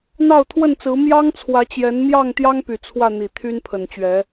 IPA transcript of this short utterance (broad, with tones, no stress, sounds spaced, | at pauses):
n̪ ɑ˥˨ ʊ̯ t̪ʰ w ə˥˨ n t͡s ɹ̩˨˦ m j ɑ˦ ŋ t͡sʰ w ä˨˦ t͡ɕ j ɛ˨˦ n m j ɑ˥˨ ŋ t̪ j ɑ˦ ŋ p y˨˩ t͡sʰ w ä˥˨ n̪ i˨˩ t̪ʰ y˦ n pʰ ə˨˩ n t͡ɕ ɥ ɛ˨˦